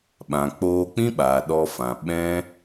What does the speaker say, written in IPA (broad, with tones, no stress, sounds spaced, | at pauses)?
ɓ ã˨ k͡p oː˧ k͡p ĩ˦ ɓ aː˨ ɗ ɔ˧ f ã˨ ɓ ɛ̃˦